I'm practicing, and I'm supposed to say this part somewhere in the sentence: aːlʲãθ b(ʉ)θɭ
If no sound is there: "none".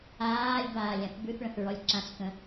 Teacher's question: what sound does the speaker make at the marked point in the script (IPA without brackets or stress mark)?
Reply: ʉ